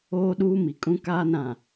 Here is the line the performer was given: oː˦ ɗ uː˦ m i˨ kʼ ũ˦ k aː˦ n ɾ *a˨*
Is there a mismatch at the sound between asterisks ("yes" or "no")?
yes